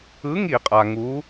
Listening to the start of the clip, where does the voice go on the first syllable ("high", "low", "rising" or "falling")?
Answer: rising